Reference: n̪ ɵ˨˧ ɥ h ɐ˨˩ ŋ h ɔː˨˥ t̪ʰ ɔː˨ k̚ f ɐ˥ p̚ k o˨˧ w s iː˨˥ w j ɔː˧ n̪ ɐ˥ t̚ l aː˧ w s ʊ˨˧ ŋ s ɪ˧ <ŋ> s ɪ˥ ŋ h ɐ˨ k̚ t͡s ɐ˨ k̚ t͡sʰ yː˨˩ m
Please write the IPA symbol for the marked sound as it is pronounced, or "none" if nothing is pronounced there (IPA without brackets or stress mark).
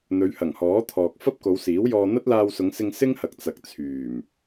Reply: ŋ